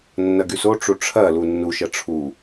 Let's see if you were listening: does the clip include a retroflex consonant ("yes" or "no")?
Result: yes